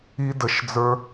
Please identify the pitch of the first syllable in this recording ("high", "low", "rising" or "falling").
high